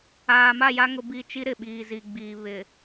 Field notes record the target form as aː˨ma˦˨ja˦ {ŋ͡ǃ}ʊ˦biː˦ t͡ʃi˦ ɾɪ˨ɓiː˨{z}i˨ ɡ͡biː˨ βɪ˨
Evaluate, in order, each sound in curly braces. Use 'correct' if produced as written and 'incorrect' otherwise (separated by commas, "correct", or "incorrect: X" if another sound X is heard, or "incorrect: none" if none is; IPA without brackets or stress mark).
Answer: incorrect: ŋ, correct